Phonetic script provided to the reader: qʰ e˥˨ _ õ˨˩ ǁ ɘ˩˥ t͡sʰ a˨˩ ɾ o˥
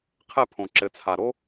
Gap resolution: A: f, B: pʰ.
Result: B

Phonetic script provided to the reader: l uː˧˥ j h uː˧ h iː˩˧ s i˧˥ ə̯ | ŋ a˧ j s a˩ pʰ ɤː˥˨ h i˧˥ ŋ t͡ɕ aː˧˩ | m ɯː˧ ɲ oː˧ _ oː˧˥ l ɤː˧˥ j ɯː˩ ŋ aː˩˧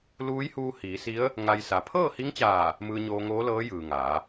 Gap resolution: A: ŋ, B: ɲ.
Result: A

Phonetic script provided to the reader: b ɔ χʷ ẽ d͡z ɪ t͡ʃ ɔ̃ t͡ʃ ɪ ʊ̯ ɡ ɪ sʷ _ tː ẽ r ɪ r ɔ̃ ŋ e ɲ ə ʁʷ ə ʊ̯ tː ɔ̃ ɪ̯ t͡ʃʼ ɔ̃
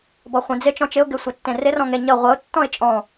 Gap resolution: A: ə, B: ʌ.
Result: A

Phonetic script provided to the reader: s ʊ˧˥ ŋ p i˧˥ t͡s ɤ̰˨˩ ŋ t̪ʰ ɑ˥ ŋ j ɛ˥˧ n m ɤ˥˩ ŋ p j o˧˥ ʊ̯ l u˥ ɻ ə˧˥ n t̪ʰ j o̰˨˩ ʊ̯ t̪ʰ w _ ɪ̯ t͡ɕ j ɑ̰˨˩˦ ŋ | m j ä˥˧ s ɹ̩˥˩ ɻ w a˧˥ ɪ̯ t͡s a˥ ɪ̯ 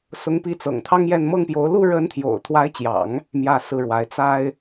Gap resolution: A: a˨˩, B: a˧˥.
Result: B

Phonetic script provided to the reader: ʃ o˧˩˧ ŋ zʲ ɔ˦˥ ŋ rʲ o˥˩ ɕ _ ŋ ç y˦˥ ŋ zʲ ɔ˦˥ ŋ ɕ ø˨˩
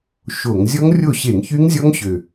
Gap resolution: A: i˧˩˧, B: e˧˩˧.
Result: B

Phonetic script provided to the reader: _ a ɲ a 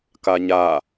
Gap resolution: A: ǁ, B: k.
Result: B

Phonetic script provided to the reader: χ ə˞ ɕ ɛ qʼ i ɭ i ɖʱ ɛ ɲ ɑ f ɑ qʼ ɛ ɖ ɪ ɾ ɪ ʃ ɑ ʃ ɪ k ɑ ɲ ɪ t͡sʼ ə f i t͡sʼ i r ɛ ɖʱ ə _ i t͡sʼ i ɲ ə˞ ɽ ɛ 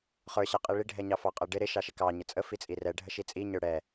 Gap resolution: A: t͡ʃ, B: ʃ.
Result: B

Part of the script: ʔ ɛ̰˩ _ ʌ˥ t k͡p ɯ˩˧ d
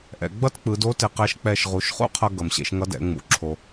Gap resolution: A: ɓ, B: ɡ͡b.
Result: B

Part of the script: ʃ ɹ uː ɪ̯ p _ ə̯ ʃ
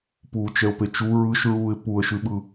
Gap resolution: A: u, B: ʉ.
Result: A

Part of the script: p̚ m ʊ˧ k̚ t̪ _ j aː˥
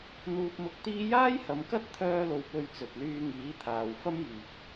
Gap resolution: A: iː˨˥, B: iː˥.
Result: B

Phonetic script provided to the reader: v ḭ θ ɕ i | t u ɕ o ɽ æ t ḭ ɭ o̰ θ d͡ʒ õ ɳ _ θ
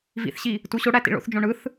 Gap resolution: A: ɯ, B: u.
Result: A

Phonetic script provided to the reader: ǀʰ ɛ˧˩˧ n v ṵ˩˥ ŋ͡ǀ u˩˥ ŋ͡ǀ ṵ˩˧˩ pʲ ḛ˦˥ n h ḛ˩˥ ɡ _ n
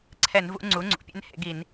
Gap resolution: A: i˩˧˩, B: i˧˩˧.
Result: B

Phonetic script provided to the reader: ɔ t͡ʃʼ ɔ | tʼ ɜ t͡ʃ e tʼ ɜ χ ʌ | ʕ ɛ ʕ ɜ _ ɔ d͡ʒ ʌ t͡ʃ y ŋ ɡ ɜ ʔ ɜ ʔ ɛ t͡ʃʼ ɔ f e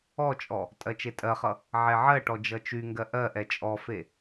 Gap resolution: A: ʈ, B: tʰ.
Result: A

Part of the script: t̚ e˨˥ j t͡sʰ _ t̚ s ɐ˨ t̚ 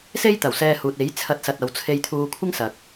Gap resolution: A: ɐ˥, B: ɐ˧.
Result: B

